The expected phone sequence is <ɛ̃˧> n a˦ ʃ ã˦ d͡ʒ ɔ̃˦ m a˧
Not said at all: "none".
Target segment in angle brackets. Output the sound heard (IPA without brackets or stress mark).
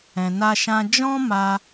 ɛ̃˧